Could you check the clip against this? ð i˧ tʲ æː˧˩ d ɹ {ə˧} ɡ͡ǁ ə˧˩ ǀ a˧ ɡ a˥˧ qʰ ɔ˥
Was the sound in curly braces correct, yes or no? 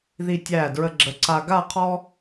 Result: yes